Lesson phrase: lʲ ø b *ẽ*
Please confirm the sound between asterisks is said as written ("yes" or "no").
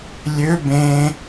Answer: yes